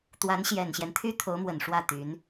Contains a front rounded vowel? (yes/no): yes